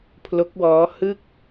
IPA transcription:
pʰ l o˦˥ k̚ w ɔː˦˥ h ɯ˥˩ k̚

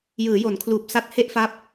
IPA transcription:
j ɯː˩˦ j o˩˦ n kʰ l uː˨˩ p̚ s a˥˩ t̚ h e˥˩ ʔ f a˦˥ p̚

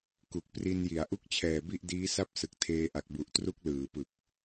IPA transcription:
k u˨˩ k̚ p r i˧ n j i˩˦ a̯ ʔ u˦˥ k̚ t͡ɕʰ ɛː˨˩ b i˥˩ ʔ d iː˦˥ s a˥˩ p̚ s ɯ˨˩ k̚ tʰ eː˧ ʔ a˨˩ k̚ b u˨˩ ʔ t r u˦˥ k̚ l ɯː˩˦ p ɯ˨˩ k̚

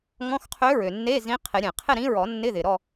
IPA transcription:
ŋ ɔ̃˧˥˧ x qʰ ø˧˥ ɹ ø˩ nː e˧˥˧ z ĩ˧˥ qʰ ɪ˨˩˦ ɾʲ ẽ˩ qʰ ɪ˥˨ ɾ ĩ˧˥ ɹ ɔ˨˩˦ nː ɪ˧˥˧ ð ɪ˩ ɾ ɔ˥˨

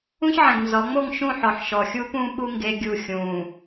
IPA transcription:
ũ˦ ç ʕ ɛ̃˨ ɡ n z ɔ˨˦ ŋ͡m o˦˨ ŋ ʃ ũ˦˨ ħ ɔ˨ ħ ʃ ɔ˨ xʲ uː˦ p ũ˦ ɓ u˦ ŋ ɡ e˦ ɡʲ u˦˨ xʲ ũː˨

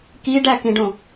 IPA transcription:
k i ɖ æ k ĩ ɖ õ

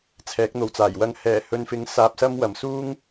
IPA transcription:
t͡sʰ ɛː˨˥ k̚ n̪ o˨ w t͡s aː˨˩ j w ɐ˨ ŋ h ɛː˨˩ h ɵ˨ n f ɪ˨˥ ŋ s aː˧ p̚ s ɐ˥ m w ɐ˨˩ m s uː˥ ŋ

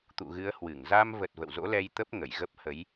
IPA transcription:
t̪ ṵ˧˨ ɣ ɨ˨˦ ə̯ h w ɨ˧˩ ŋ z a˧ m v ə˨˩ t̚ v ə̰˧˨ w z o̰˧˥ l ɛ˧ j t̪ ə˦˥ p̚ ŋ ə˧˩ j ɣ ə˦˥ p̚ h ə˨˦ j

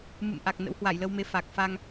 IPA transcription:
m ɨ̰˧˨ m ʔ a˨˩ k̚ n ə̰˧˥ w h w a˧˩ j l ə˧ w m e˨˦ f a˨˩ k̚ f a˧ ŋ

